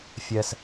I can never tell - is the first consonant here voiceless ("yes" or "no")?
yes